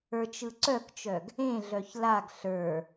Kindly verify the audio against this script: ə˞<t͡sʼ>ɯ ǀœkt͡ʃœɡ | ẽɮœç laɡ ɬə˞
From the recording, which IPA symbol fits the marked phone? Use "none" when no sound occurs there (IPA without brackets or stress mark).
t͡ʃ